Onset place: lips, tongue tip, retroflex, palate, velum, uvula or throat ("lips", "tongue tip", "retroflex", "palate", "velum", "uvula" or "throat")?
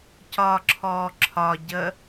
palate